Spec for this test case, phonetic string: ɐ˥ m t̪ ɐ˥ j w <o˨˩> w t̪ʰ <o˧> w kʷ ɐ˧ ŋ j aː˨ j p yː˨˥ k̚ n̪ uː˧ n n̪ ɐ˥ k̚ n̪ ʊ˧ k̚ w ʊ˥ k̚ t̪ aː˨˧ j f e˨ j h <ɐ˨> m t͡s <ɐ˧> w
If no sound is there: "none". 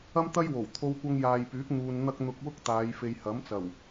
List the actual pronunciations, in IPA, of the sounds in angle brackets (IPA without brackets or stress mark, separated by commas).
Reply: o˨˩, o˧, ɐ˨˥, ɐ˨˩